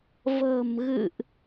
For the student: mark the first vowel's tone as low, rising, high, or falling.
low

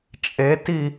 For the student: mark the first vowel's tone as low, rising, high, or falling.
rising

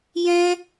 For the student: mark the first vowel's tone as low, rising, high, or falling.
high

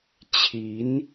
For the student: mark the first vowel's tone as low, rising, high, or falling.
rising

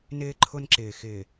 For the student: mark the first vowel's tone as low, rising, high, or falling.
high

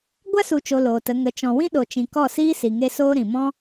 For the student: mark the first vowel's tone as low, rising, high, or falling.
high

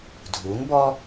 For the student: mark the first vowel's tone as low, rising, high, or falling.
rising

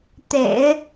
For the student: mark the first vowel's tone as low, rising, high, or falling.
low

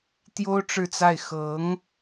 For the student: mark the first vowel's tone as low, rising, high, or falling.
high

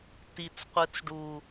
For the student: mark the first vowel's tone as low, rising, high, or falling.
low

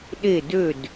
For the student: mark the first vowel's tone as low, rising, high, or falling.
falling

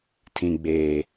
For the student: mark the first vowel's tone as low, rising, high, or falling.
low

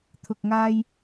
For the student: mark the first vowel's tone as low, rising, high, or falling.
low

